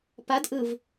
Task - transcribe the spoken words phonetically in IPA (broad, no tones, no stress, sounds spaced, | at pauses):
p a d ʔ ɯ v